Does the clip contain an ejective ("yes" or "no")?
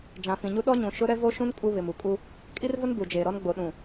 yes